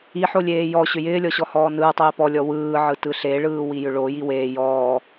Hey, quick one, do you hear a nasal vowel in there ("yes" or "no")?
no